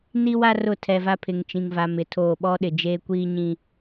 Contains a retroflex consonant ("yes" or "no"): no